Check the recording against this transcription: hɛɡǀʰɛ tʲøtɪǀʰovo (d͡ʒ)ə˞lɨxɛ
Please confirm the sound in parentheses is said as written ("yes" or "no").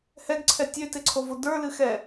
no